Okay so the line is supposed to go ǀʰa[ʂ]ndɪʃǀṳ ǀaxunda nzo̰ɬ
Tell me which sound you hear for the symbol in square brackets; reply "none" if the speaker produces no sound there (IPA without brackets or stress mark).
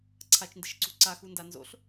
t͡ʃ